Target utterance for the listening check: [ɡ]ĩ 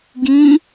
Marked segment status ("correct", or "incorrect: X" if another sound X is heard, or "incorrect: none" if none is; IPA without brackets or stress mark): correct